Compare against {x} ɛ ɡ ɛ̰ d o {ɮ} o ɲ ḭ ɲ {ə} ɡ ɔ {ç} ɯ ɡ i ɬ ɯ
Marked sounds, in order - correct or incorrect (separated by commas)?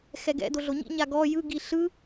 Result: correct, correct, incorrect, incorrect